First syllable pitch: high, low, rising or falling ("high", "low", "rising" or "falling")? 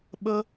high